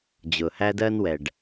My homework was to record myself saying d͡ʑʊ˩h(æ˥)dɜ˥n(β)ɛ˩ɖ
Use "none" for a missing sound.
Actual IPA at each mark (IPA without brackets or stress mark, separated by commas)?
æ˥, w